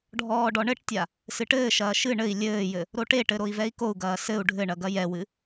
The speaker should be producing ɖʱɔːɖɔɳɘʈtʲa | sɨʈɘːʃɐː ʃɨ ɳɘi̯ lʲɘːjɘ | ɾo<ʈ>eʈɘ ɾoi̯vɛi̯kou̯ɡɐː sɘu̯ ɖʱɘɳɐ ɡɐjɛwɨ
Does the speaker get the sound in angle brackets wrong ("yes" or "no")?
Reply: no